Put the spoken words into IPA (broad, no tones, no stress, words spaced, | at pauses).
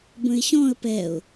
bə̃ɪ̯ɕɔ̃ə̯ pɛʊ̯